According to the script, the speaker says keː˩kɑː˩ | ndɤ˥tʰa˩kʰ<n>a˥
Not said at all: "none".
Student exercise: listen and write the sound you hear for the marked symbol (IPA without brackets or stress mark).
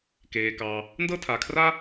r